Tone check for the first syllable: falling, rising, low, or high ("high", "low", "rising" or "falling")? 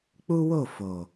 high